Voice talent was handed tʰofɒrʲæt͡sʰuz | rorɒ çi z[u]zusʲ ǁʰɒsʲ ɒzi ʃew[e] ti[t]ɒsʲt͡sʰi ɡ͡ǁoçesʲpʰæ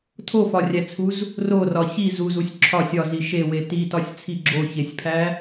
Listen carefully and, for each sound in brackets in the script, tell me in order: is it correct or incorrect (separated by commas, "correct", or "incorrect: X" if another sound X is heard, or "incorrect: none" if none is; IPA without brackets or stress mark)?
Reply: correct, correct, correct